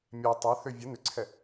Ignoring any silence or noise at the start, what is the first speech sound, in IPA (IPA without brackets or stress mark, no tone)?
mʲ